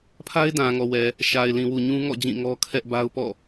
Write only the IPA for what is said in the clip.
pʰa˦ɪ̯ dã˨ŋɔ˨wɛ˨ | ʃa˨ɪ̯lĩ˨wu˨ ɲũ˦ŋɔ̰˦˨d͡ʑĩ˦˨ ŋɔ˦ kʰɛ˦ʔba˦ʊ̯pɔ̰˦˨

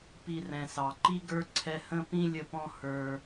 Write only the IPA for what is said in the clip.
pi˨rɛ̃˩sɑ˩ǃi˥ ɡə˞˥ǀʰɛ˦ hə̃˥pĩ˥ lʲə˦pɔ̃˥ hə˞˦

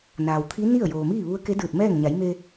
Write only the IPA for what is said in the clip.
naː˩wt̪ʰi˧˥ ni˥˨ə̯ joː˩miː˥˨ ʋu˧˥ə̯ke˧˥dɯː˧˩t̚mɛː˥˨ŋ ɲa˩˧jme˧

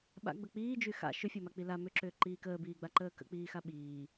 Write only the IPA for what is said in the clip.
ɓa̰ɡ͡bə k͡piːd͡ʒy xa̰ ʃʏfʲɔmak͡pi la mʏǁʏːǃiː kəːbiːɡ͡baǃəː kə̰k͡piːxa ɓiː

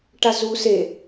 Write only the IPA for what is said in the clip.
ʈazu se

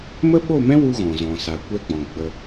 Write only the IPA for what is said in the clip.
mə˦ɓo˦˨mɛ̃˦ wu˦ɣɔ̃˨zɔ̃˨ sa˨kʷɛ˦ɡ͡bɔ̃˨ ɡ͡bə˧

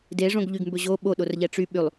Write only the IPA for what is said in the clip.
deʐõɡʎyɡmbɵ ʑo ɓoɗorʎɛ ʈ͡ʂy ɓylˠ

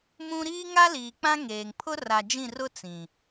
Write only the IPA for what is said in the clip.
mũ˦ ɾiː˦ŋa˦ liː˨k͡pã˦ŋeː˨ŋ pʰʊ˦ ra˨d͡ʒĩ˦˨rʊ˦ t͡sĩ˨

